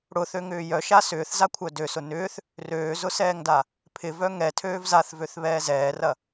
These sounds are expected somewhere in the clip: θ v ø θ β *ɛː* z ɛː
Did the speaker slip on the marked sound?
no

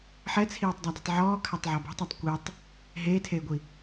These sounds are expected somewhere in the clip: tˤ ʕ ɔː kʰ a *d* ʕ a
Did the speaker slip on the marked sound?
yes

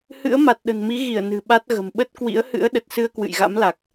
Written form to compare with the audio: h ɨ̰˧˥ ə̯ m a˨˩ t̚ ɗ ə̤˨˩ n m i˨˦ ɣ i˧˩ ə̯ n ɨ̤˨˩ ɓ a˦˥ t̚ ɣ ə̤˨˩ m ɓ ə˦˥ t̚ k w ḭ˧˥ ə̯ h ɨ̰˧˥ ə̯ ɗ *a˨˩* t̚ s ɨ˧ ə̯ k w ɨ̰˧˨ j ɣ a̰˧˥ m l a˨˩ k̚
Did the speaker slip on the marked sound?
yes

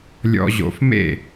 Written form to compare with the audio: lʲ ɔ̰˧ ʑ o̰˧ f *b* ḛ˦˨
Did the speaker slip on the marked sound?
yes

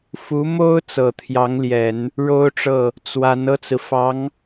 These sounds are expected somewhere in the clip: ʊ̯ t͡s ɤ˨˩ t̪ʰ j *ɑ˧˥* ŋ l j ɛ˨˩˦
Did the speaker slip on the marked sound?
no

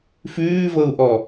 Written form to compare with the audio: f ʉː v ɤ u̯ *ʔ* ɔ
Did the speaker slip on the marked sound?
no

